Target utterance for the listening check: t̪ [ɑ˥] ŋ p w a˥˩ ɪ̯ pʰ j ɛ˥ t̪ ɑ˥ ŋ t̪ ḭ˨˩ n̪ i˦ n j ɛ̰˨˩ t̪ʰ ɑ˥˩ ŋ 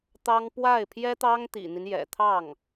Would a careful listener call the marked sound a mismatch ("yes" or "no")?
no